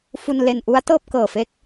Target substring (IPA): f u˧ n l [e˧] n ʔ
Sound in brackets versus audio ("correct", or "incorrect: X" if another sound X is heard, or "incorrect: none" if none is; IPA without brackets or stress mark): correct